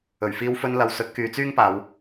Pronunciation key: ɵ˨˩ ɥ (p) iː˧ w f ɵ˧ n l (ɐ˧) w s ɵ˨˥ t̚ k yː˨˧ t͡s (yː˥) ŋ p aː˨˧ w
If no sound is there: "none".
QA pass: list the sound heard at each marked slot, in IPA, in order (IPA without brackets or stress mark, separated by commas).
f, ɐ˨, yː˥